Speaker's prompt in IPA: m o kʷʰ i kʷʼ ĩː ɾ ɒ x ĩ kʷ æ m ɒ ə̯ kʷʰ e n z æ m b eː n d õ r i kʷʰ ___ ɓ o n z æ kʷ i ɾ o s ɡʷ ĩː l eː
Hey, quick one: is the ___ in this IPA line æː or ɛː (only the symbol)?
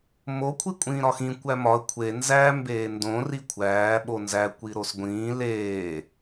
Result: æː